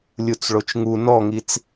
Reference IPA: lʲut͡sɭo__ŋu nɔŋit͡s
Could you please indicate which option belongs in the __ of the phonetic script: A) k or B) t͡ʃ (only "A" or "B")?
B